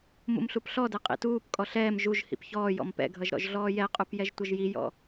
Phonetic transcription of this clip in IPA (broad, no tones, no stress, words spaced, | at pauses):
mṵmɬupɬɔdɛ qʼḭtuːpkʼɔ ɬɛːm ʒuʒ hḭpçɔːjɔ̰m pɛ̰ɡʱʌʒ ɾɔ̰ʒɮɔːjɛqʼup jɛʒtʷʌʒjijɔ̰